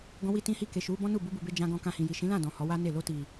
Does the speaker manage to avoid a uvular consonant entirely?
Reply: yes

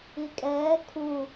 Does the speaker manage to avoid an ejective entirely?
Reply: no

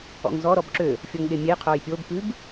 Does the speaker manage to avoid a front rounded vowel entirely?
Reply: no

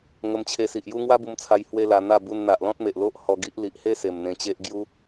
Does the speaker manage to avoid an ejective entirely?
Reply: yes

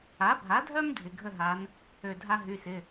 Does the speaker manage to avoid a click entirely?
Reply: yes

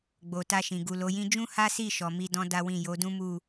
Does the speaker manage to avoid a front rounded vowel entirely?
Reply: yes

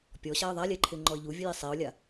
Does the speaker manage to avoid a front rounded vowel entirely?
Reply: yes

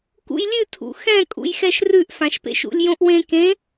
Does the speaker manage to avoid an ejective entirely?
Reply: no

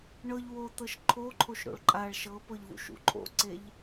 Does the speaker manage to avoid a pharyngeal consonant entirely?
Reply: yes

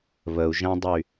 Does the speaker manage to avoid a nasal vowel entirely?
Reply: no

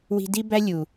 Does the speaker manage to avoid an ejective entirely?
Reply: yes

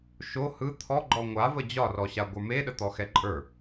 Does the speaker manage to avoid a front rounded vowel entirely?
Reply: yes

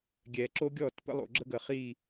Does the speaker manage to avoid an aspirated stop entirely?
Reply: yes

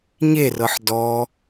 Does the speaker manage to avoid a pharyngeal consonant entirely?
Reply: no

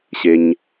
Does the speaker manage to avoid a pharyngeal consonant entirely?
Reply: yes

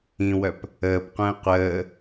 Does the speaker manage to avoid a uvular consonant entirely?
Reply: no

